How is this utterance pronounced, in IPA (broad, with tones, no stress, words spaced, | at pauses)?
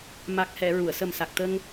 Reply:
ma˨˩k̚hɛ˨˩˨ ɹu˨˩˨ə̯sə˨˩msa˨˩k̚t̪ə˧ŋ